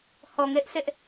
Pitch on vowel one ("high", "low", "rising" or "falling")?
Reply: low